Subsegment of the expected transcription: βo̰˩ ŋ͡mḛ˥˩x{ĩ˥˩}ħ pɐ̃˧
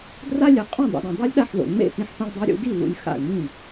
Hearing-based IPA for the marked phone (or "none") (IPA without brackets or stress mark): ĩ˧